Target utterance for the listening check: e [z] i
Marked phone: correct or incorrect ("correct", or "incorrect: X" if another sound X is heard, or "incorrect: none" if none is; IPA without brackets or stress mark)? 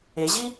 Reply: incorrect: ʑ